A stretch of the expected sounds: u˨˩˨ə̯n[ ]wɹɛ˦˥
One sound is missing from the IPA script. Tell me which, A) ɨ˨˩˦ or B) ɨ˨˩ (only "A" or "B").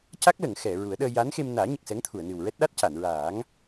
B